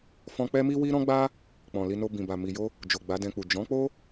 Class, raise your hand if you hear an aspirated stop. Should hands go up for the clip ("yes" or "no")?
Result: no